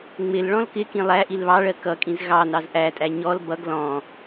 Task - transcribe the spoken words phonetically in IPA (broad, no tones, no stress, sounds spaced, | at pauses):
ŋ͡m ɪ l ɭ ɔ̃ l k ɪ k ĩ lˠ æ ʔ i l β ɑ ɭ ɜ k ʌ kʼ ĩ z ɣ ɑ n ɑ z ʔ æ tʼ æ ɲ ɔ l b ʌ ɡ l ɔ̃